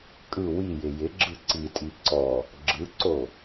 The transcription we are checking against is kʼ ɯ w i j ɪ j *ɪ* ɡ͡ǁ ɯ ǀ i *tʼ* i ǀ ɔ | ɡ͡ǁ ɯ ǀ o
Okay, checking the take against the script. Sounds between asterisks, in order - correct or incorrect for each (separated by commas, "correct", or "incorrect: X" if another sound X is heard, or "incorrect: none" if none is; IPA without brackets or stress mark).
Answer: correct, correct